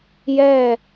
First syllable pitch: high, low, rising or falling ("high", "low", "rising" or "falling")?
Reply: falling